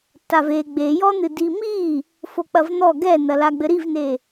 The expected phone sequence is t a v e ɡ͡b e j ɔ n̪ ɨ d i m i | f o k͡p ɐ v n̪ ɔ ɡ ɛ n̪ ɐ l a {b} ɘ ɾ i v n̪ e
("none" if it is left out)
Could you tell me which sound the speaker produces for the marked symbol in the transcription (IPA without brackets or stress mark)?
ɡ͡b